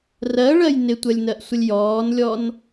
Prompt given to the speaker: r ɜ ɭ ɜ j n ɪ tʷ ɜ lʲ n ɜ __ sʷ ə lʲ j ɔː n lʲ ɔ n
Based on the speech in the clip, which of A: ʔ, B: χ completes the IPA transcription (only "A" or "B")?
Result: A